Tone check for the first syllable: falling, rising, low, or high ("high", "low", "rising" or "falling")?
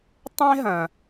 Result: high